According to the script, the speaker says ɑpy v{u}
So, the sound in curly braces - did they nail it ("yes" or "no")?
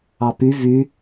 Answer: no